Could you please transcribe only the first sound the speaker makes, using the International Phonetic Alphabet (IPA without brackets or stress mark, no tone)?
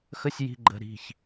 x